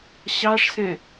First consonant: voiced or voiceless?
voiceless